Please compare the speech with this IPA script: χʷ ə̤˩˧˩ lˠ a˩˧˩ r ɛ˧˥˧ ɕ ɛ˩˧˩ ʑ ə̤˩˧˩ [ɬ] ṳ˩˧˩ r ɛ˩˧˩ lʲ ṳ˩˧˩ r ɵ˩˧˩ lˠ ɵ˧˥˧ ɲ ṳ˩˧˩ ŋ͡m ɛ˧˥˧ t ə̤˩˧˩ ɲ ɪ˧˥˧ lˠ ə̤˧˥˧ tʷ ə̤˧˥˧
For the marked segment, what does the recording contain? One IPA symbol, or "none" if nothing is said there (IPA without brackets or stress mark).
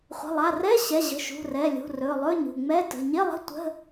ʃ